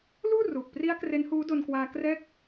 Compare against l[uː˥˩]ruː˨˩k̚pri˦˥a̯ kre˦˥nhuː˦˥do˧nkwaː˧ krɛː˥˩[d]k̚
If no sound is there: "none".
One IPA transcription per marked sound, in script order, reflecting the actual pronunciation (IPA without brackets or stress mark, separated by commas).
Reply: uː˥˩, none